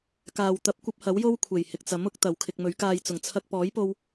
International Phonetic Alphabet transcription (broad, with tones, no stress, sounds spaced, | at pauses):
k aː˨ w t̪ ɐ˧ p̚ kʷ ɐ˥ p̚ h ɐ˨˥ w j o˥ w kʷʰ e˨˩ j h ɪ˨ k̚ t͡s ɐ˨˥ m ʊ˨˥ k̚ t̪ ɐ˨ w kʰ ɪ˧ k̚ m ɵ˨˥ ɥ k aː˧ j t͡s ʊ˨˩ ŋ t͡sʰ ɐ˧ k̚ p ɔː˨˥ j p o˧ w